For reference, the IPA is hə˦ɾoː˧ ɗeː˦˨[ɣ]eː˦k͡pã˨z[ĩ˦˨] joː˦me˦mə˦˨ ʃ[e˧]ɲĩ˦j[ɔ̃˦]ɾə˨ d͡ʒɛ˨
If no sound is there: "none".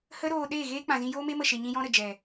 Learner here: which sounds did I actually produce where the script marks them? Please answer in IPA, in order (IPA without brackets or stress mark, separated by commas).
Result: ɣ, ĩ˧, e˧, ɔ̃˦